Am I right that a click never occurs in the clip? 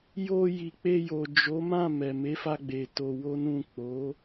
yes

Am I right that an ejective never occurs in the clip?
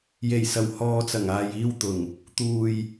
yes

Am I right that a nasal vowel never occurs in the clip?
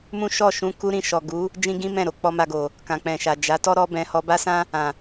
no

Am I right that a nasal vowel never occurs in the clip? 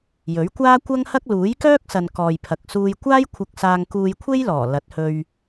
yes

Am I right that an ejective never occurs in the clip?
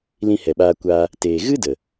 yes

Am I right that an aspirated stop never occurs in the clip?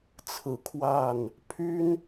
no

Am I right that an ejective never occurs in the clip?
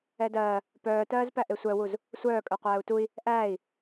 no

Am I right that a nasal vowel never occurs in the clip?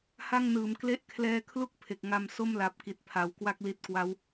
yes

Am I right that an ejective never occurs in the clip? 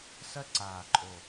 no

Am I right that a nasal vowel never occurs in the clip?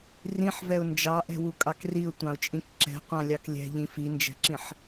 no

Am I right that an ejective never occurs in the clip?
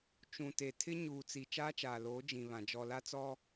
yes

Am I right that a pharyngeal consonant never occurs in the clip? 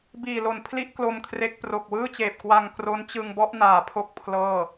yes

